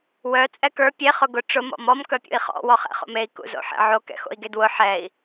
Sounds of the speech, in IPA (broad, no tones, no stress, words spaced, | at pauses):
wœ t͡sʼɛkə˞ pʲe χʊɡʊ ʈ͡ʂʊ mɔ̰mɔm kœpʲṵi̯χɔ̰ wɔχɛ̰χo̰mei̯ kṵzo̰ħḛʕo kɛ̰xo̰i̯ɡedwʊ ħɛi̯